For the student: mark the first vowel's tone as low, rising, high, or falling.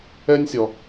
high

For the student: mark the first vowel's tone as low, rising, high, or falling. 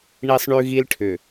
high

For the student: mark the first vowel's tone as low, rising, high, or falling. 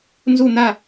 falling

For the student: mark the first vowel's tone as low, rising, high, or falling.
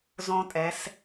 high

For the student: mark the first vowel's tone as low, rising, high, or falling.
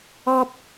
high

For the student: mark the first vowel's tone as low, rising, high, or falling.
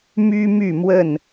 high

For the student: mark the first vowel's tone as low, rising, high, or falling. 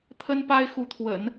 high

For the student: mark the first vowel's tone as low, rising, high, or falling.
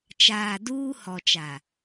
low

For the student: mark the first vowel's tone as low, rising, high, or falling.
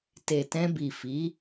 low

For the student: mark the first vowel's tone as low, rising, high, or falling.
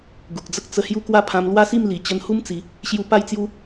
low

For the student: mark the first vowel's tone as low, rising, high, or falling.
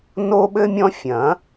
high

